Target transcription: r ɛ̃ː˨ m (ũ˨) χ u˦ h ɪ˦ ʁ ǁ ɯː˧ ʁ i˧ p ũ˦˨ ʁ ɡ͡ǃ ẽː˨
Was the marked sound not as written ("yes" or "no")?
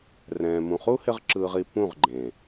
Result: no